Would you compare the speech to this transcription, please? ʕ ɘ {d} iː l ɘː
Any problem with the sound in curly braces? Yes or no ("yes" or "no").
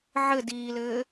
no